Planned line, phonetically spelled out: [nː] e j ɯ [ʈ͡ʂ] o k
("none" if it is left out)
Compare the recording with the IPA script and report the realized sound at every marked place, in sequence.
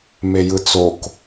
m, t͡s

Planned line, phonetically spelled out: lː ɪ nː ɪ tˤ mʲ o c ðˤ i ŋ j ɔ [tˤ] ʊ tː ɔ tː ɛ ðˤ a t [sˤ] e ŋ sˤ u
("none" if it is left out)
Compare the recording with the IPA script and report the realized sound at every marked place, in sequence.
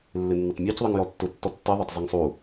tː, zˤ

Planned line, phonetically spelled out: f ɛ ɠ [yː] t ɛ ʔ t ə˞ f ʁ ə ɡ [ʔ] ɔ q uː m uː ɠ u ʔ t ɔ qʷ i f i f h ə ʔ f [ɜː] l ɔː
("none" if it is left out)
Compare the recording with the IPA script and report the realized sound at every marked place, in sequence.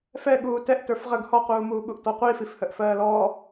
uː, h, ɜː

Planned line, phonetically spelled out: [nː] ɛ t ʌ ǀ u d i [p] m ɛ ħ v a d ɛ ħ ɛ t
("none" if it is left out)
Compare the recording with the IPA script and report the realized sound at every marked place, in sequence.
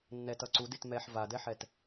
nː, t

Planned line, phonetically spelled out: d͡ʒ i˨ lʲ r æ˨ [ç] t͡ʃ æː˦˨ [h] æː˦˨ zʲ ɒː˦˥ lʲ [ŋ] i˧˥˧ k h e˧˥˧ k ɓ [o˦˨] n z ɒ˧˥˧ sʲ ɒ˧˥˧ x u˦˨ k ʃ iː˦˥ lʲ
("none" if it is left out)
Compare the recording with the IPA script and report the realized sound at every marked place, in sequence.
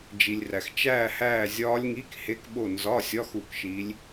x, h, ŋ, o˦˨

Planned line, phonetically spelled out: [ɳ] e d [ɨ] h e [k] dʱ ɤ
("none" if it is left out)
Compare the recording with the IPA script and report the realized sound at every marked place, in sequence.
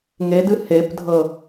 ŋ, ɨ, p

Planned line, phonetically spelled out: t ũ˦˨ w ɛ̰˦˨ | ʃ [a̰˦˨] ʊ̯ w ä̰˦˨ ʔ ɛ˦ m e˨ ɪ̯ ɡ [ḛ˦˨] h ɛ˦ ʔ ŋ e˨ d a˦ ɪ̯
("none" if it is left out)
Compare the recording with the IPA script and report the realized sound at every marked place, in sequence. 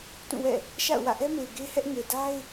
a̰˦˨, e˦

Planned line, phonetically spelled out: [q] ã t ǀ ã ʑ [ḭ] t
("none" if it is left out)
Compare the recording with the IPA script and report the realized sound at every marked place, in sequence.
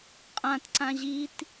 qʼ, i

